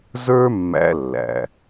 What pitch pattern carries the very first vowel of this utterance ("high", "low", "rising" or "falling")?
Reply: high